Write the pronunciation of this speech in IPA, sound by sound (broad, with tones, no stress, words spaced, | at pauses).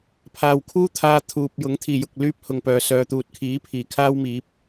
pʰaː˨wkʰuː˥t̪ʰaː˧ t̪ʰuː˨p̚jʊ˨˥ŋ t̪ʰiː˨˩jʊ˨k̚ lyː˥p̚hʊ˨ŋpœː˨ sœː˨t̪uː˨t̚ kʰiː˨˥pʰiː˨˩ kʰaː˥wmiː˨˥p̚